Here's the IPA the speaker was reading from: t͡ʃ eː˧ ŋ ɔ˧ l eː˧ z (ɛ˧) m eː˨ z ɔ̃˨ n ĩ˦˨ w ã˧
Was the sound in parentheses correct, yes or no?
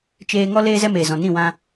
yes